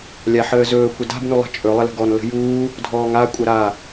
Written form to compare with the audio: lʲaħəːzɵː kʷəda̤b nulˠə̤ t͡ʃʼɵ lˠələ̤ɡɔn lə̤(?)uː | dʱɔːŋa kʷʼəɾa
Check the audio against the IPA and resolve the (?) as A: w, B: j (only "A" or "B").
B